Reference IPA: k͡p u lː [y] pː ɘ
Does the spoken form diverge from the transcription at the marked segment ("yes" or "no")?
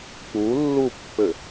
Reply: yes